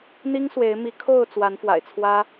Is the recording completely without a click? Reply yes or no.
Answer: yes